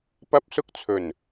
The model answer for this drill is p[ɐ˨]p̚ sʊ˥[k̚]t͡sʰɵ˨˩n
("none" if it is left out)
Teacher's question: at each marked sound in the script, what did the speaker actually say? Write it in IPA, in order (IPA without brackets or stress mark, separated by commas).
ɐ˥, k̚